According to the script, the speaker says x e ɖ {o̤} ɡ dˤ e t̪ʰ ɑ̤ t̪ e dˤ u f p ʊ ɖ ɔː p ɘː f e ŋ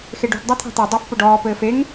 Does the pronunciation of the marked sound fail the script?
yes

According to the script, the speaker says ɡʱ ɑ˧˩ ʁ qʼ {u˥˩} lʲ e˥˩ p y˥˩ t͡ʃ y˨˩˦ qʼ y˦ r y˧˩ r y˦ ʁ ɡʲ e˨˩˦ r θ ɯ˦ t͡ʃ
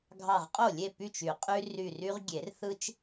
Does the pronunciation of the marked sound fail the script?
yes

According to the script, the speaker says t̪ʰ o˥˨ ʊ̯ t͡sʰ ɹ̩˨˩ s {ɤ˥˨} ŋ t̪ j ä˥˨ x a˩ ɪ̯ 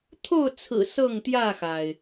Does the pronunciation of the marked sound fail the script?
no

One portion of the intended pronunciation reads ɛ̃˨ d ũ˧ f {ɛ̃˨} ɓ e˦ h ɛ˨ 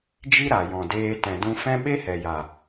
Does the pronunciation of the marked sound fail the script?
yes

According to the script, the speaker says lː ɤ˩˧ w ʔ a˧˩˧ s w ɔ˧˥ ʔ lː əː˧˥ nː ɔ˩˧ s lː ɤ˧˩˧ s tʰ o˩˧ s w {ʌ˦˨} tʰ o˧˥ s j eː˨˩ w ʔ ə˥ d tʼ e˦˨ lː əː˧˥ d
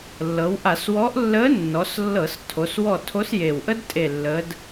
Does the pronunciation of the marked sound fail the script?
yes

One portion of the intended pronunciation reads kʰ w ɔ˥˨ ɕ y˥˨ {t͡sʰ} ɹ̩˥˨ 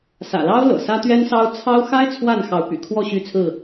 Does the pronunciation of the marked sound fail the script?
no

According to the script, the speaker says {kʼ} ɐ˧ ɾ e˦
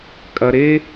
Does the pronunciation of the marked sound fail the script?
no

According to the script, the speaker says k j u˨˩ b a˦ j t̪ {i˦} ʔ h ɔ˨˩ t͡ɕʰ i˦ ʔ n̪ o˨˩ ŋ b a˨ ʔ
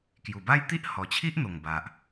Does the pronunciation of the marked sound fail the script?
no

